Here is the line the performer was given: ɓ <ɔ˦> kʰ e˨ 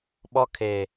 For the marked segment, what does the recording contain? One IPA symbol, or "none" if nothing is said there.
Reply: ɔ˦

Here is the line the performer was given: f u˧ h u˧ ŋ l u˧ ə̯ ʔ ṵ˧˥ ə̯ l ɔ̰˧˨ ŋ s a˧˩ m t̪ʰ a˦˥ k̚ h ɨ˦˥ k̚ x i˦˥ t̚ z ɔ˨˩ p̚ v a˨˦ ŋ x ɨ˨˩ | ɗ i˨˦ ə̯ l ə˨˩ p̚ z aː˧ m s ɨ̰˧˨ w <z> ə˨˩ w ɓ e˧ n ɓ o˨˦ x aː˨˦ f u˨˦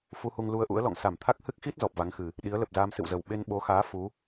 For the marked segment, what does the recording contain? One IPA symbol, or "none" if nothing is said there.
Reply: z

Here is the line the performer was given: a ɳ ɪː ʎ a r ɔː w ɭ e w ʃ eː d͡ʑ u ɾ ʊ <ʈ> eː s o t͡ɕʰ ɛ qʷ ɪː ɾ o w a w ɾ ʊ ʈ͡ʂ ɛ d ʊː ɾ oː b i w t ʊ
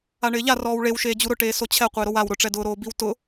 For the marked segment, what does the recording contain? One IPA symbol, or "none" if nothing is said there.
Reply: ʈ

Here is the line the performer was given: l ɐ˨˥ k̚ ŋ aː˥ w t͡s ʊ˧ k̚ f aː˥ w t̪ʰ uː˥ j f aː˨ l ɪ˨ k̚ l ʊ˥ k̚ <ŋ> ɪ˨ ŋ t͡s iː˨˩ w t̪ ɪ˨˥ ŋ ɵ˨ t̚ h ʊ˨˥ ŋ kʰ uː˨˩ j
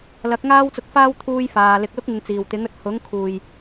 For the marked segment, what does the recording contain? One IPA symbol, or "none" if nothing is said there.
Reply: ŋ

